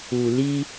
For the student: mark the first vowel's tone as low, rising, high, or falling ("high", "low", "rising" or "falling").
low